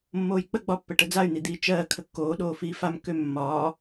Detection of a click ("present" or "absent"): absent